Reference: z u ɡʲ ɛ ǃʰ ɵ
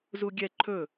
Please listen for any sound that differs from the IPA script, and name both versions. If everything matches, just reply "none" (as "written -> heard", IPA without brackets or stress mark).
none